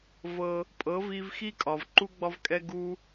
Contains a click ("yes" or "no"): yes